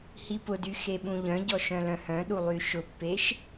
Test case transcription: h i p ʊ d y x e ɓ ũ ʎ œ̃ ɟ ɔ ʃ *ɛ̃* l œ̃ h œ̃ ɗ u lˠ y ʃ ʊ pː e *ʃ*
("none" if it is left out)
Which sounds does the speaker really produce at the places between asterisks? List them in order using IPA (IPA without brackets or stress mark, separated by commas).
œ̃, ʃ